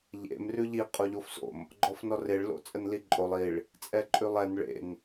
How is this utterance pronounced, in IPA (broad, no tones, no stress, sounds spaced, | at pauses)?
ʎ ḛ m r ʉ ʎ i qʼ o ʎ o f s o̰ m | ɡ͡ǃ ɔ f n ɔ r e ɭ l o̰ t͡sʼ ə n l i ǃʼ o lˠ i ɭ | t͡sʼ ɛ ǃʼ ʉ lˠ ɛ n ɭ ḛ n